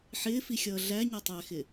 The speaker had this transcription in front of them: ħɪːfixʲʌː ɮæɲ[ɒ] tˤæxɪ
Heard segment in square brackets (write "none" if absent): ɒ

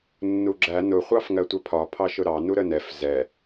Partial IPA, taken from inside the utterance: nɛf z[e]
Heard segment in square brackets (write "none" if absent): ɛ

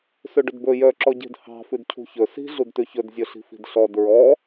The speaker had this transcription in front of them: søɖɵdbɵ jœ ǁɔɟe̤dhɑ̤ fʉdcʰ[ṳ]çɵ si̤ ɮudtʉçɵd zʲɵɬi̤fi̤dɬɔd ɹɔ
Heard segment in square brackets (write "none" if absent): ṳ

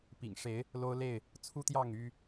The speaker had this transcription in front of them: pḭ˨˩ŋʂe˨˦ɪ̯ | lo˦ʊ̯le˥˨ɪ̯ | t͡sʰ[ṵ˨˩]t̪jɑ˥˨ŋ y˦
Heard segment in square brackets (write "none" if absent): u˦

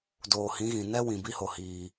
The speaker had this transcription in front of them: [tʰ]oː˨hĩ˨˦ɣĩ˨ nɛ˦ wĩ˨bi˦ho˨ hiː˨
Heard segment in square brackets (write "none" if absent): d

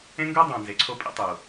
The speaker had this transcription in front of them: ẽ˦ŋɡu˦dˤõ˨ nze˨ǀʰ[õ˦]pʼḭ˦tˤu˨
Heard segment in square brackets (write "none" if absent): o˦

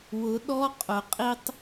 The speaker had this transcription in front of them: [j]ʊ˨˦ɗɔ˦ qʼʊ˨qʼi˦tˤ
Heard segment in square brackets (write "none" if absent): w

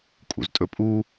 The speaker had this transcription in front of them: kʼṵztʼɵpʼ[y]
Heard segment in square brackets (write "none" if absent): u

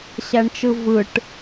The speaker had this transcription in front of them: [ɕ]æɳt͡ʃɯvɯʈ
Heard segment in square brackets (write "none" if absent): ɕ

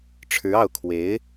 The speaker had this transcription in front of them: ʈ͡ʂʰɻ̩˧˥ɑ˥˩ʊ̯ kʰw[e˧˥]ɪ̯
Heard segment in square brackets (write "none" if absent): e˧˥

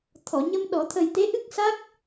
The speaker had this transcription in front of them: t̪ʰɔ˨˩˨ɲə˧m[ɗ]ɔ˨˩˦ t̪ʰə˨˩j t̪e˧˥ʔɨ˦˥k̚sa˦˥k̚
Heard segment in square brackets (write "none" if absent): ɗ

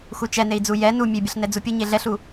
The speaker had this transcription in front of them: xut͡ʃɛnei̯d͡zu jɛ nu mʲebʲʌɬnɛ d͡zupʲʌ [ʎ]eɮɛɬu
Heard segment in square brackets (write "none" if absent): ɲ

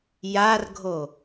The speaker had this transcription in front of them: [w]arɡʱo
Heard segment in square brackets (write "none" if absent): j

